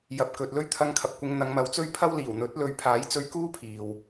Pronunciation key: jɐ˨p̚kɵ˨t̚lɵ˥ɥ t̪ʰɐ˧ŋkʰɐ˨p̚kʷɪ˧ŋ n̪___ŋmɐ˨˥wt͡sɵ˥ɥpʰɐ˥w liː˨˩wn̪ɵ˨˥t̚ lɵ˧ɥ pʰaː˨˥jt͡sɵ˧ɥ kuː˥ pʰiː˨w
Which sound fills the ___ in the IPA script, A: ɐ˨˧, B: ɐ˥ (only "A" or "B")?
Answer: A